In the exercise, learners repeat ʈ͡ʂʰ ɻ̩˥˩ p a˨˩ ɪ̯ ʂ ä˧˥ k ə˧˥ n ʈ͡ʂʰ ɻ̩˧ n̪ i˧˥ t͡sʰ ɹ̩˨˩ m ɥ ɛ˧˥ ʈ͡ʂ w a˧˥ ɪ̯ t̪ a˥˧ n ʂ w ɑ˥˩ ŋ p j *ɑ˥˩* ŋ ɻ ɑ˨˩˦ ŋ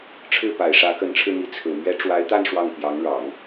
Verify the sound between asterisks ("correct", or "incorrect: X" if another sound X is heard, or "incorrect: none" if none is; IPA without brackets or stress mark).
incorrect: ɑ˧˥